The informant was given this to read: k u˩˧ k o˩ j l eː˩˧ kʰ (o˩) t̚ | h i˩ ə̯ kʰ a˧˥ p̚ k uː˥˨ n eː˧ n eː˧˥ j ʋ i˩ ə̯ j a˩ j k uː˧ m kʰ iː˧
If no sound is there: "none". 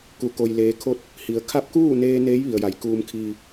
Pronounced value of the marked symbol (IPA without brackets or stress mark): o˧